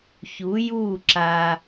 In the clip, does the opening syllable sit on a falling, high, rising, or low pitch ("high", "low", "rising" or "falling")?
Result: rising